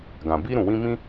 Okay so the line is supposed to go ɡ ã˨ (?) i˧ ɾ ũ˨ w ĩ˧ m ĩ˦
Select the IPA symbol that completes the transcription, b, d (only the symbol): b